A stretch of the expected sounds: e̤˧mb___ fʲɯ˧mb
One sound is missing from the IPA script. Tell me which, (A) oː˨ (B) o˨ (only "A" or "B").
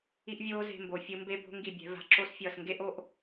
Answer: B